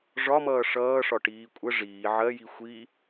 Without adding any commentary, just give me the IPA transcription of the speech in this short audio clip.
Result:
ʐ ɒ m ʌː ʂ ʌː ʂ ɒ ʈ iː kʷʼ ə ʐ iː ʕ ɜ j i xʷ i

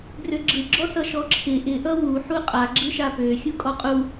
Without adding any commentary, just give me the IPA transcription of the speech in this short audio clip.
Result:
ɡ r ø ɡ͡ǁ ɯ ɡ͡ǁ ɔ s ʌ ʃ ɔ ǁʰ ɪ ʔ ɪ ʔ ʌ w u ħ u qʼ a ɡ͡ǁ ɯ ʃ a p ø xʲ u kʼ ɔ qʼ u

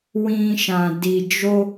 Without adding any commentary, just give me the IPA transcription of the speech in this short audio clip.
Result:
w ĩ˧ ʃ ã˨ d i˨ d͡ʒ o˧

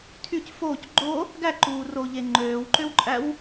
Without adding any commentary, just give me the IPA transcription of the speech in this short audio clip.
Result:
tʰ y c f oː c ɡ͡ǃ o | ɡ æ ǃ uː r oː ʎ e ŋ͡ǃ øː w ǃ ø w ǃʼ æ w

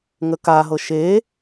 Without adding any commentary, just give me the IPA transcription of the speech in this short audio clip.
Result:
ŋ ə k a ɦ ɤ ʃ e

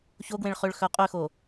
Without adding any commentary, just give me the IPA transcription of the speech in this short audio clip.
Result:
ç o ɡ w ẽ ɭ χ ø ɭ x œ qʼ ø x o

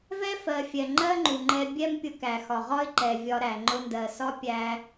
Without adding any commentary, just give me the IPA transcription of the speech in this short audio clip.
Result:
v ɛ˥ f ɜ˩ fʲ ɛ˩ ŋ͡ǃ ɜ˥ ŋ͡ǃ u˩ ŋ͡ǃ ɛ˧ bʲ ɛ˥ m pʲ ʊ˧ k æ˩ x ɒ˩ ʁ ɒ˥ ɪ̯ ǃ ɛ˩ vʲ ɒ˧ ɾ æ˩ ŋ͡ǃ ʊ˧ n d ɜ˩ s ɒ˥ pʲ æ˧

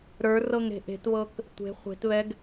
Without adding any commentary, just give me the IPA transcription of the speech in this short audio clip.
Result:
ɾ ə˞ r ɤ ŋ ɾ e̤ ʔ e̤ t β ɤ k | tʷ e̤ χʷ e̤ t β ɛ ɡ

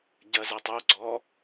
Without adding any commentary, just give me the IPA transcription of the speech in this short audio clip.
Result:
ɟ ɜ z ɛ tˤ u ɡ͡ǀ ɔ

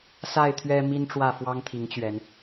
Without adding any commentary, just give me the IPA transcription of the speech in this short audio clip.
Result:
s a˥˨ ɪ̯ t̪ʰ ɥ ɛ˦ m i˦ n ʈ͡ʂ w ä˥˨ f w ɑ˦ ŋ t̪ʰ i˨˦ ŋ t͡ɕ ɥ ɛ˨˦ n

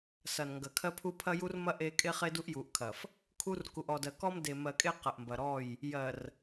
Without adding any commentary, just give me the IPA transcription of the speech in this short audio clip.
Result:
s ɐ˨ n ŋ ɡ ɐ˨ kʰ ɜ˦ pʰ u˦ pʰ ɐ˦ j u˦ r m ɐ˦ ʔ e˦ kʼ e˦ χ e˦ d u˦ ʔ j u˨ ʔ kʰ ɐ˨ f | kʰ u˦ r k u˨ ʔ ɔ˨ d ɜ˨ k ɔ˦ m d e˨ m ɜ˨ kʼ e˦ q ɐ˨ ʔ m b ɐ˨ ɾ ɔ˦˨ j | j ɜ˨ r

